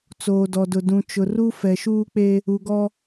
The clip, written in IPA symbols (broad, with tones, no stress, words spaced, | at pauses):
t͡soː˨dɔ˨dʊ˨ dũ˨t͡ʃʊ˨ru˦ fɛ˨ʃuː˦k͡pe˦ | u˨ɡɔ˦